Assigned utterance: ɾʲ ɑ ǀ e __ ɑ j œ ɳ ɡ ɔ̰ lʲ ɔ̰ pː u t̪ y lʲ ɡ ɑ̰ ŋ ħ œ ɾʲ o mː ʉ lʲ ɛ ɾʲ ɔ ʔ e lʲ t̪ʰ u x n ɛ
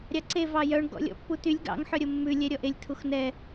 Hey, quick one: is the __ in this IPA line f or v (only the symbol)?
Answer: v